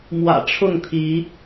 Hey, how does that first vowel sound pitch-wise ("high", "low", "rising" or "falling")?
low